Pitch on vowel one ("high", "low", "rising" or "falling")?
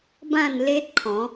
falling